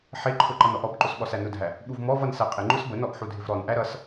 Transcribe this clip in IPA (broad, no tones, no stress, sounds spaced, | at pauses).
ħ ɪ ǃʰ ʊ ǃ ʌ n ɔ ʔ ɔ b ǃ ʊ s ɓ ɔ s æ n ʊ dʱ æ | ɓ u v m ɔ v ʌ n s æ qʼ ɪ ŋ͡ǃ ʊ s b ə n ɔ ʔ ħ u dʱ ɪ v ɾ ɔ n ʔ æ ɾ ʌ s